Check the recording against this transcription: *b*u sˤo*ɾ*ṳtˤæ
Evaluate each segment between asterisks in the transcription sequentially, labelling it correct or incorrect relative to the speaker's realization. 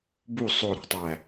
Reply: correct, correct

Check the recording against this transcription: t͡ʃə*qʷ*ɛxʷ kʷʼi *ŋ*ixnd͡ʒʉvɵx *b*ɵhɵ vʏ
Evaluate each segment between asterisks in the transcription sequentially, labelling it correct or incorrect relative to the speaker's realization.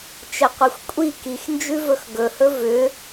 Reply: correct, incorrect, incorrect

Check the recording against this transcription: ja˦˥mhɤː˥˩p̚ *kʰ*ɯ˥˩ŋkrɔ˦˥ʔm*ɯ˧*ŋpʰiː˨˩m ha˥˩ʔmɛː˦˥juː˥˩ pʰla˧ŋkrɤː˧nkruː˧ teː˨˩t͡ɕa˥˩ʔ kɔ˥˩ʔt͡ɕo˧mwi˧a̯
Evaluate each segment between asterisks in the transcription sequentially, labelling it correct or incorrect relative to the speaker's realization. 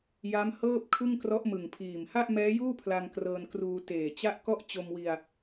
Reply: correct, incorrect

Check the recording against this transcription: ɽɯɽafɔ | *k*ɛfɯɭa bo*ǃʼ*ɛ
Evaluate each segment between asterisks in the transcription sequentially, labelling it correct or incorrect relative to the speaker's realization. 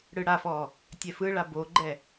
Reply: incorrect, incorrect

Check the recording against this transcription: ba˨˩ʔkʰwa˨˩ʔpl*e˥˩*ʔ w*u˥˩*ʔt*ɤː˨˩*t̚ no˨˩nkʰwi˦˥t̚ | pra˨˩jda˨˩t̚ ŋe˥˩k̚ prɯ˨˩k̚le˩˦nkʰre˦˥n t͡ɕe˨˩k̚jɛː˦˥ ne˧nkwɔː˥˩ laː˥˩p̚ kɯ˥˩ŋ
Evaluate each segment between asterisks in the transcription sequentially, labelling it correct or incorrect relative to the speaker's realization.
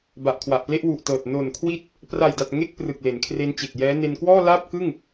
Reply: correct, incorrect, correct

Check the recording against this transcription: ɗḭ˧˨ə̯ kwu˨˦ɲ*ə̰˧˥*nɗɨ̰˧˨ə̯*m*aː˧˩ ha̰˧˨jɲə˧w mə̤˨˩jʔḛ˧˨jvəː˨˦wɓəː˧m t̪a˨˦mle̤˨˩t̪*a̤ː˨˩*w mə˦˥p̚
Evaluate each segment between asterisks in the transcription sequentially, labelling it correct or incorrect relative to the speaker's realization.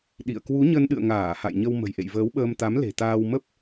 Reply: incorrect, incorrect, incorrect

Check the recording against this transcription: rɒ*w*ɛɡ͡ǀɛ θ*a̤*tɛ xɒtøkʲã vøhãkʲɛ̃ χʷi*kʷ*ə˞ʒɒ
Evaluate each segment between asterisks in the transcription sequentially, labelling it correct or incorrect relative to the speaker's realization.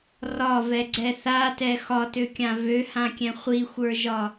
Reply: incorrect, incorrect, incorrect

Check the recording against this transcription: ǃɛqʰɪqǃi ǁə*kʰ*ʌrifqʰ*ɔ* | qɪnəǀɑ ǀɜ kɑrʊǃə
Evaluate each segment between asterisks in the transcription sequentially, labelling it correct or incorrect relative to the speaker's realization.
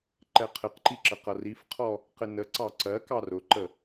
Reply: incorrect, correct

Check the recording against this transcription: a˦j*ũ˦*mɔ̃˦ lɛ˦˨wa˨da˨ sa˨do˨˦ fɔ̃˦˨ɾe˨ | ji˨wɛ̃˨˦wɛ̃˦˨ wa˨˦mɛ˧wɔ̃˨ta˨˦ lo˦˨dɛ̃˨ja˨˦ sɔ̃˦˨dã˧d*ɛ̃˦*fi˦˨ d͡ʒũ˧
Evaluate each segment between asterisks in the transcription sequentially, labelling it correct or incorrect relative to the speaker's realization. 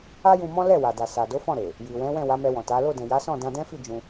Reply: incorrect, correct

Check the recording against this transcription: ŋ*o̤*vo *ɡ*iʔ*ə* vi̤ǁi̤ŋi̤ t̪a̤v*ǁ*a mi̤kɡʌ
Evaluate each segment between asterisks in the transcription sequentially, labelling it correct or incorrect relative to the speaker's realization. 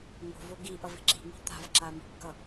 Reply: correct, correct, incorrect, correct

